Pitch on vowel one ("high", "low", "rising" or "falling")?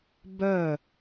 falling